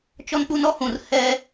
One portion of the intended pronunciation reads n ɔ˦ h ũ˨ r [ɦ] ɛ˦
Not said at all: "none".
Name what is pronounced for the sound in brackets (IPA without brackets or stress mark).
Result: h